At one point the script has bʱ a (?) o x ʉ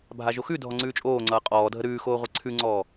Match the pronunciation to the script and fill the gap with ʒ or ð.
ʒ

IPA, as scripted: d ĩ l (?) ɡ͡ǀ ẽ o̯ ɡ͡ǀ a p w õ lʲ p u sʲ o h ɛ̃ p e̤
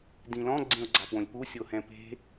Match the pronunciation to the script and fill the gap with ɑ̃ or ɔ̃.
ɔ̃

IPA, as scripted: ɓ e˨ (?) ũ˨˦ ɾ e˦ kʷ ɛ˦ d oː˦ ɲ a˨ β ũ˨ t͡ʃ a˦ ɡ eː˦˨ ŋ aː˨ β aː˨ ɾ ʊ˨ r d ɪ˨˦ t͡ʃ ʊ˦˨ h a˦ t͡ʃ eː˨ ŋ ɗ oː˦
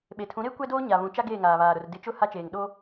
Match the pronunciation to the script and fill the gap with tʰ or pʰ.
tʰ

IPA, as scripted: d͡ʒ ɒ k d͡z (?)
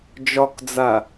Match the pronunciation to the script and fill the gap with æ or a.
a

